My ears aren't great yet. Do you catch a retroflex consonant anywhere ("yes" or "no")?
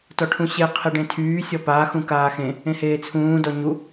yes